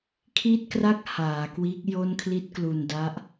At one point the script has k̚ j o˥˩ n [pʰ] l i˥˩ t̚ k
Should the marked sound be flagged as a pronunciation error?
yes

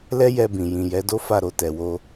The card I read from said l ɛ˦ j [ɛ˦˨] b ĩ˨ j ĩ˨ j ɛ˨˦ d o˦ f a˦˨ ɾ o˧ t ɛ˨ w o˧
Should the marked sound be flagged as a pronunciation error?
yes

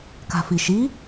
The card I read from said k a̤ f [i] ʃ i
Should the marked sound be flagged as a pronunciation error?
no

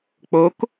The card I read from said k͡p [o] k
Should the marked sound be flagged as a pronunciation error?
no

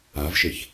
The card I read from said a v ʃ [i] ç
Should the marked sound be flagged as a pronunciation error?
yes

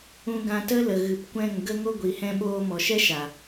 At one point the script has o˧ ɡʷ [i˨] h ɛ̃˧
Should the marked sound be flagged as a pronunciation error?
no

